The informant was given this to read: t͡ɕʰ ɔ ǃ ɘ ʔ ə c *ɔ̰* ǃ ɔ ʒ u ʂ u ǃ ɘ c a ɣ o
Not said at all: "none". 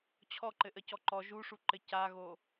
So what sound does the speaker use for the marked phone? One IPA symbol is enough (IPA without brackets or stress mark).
ɔ